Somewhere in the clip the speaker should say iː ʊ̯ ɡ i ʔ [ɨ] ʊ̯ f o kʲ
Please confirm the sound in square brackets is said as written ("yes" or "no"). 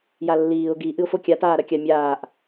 yes